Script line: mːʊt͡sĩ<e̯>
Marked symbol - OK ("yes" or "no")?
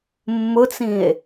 yes